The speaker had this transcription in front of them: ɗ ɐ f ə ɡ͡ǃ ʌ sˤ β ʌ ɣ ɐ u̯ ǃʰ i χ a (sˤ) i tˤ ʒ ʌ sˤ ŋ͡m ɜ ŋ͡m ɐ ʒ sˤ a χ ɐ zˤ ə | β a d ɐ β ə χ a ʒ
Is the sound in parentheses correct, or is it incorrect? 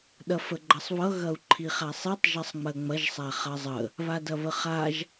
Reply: correct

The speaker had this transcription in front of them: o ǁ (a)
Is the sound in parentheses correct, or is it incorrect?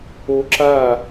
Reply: correct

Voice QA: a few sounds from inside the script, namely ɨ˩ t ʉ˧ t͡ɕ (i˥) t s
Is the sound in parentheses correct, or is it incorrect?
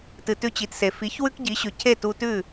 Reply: incorrect: i˩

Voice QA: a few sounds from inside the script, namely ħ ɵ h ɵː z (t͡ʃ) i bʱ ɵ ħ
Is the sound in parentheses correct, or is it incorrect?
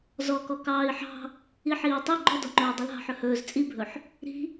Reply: incorrect: t͡sʼ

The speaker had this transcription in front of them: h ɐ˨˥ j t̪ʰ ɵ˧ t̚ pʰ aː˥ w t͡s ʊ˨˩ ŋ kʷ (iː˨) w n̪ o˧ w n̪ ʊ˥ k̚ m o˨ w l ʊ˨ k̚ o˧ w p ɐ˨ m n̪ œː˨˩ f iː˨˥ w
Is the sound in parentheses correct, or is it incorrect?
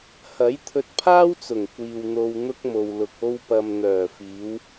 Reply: correct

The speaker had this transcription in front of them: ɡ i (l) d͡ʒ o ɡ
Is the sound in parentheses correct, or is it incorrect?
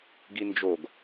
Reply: incorrect: n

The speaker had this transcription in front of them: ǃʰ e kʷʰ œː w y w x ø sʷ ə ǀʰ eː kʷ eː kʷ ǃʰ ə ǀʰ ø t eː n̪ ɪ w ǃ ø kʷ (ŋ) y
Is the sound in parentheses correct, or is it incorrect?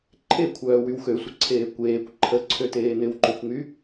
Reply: correct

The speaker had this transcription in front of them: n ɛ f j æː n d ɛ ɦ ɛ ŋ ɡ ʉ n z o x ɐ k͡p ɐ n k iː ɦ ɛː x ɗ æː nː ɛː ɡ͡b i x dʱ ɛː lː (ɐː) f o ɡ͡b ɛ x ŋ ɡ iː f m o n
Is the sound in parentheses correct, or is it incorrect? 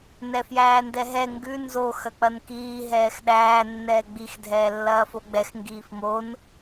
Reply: correct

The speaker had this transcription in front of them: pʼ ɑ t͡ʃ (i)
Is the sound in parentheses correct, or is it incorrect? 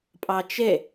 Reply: incorrect: e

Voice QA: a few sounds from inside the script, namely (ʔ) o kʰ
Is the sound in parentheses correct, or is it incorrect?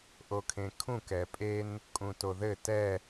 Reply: correct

